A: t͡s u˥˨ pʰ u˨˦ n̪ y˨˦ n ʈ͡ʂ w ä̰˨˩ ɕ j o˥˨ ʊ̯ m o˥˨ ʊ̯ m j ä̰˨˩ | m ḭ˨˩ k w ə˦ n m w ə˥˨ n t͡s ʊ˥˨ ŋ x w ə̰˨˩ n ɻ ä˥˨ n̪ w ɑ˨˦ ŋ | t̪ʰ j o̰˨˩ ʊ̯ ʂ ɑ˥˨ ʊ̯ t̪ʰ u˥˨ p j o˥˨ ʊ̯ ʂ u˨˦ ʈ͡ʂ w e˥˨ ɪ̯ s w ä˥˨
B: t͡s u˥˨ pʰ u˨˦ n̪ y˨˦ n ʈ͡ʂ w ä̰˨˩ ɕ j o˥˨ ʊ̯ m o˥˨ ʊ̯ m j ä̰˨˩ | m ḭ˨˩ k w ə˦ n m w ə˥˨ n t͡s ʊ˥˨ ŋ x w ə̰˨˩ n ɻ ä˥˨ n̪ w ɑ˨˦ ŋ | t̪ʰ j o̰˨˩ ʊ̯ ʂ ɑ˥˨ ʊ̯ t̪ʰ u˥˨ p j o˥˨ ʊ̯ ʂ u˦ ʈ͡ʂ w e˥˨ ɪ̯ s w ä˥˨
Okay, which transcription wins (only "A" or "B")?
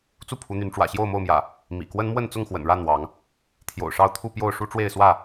B